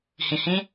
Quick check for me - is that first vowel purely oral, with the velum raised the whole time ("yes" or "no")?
no